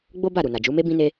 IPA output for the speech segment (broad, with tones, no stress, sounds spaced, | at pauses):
ɡ͡b o˦ b a˦˨ ɾ u˨ n a˨ d͡ʒ u˨˦ m e˦ b ĩ˦ n e˦